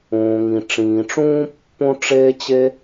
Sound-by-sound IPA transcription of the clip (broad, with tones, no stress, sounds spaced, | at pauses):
õː˩ ŋ ĩ˩ ʈ͡ʂ ĩː˩ ʈ͡ʂ ũː˦ pː õ˦ ʈ͡ʂ eː˦ t͡ɕ e˦